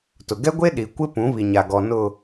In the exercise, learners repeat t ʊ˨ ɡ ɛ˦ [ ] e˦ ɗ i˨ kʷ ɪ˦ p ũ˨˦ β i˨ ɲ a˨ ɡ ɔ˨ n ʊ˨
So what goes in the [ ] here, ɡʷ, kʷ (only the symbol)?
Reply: ɡʷ